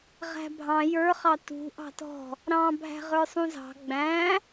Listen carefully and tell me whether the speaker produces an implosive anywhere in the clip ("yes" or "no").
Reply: no